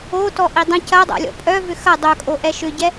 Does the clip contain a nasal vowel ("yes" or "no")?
yes